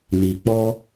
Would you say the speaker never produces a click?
yes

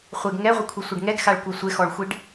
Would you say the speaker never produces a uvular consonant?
no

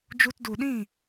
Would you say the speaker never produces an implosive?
no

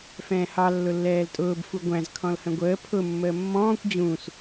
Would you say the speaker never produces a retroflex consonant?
yes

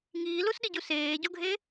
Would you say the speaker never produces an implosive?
no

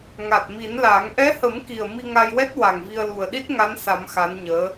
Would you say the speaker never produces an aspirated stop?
yes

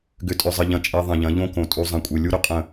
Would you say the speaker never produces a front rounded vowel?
no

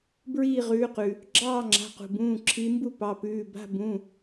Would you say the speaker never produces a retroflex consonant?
yes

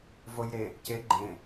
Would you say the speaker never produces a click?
no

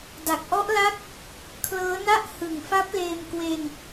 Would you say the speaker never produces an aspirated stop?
no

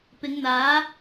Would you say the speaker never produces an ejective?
yes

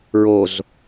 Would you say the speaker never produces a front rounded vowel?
yes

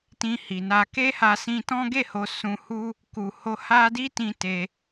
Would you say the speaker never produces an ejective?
yes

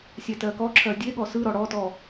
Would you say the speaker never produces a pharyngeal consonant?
yes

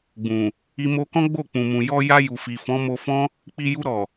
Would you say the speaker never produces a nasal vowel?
no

